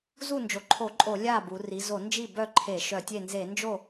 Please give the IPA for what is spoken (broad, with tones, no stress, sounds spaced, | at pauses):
z u˥˩ n d͡ʒ o˩˧ ǃʰ o˧˩˧ ǃʼ o˧˩˧ lʲ a˥˩ b u˩˧ r i˩˧ z o˧˩˧ n d͡ʒ i˥˩ b œ˥˩ ǃʰ e˧˩˧ ʃ œ˧˩˧ tʲ e˥˩ n z e˧˩˧ n d͡ʒ o˥˩